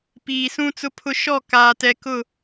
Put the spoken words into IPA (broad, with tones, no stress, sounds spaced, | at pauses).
p iː˨ s ũ˦ t͡s ʊ˦ pʰ ʊ˦ ʃ ɔ˦˨ k aː˨ t ɛ˨ k ʊ˦˨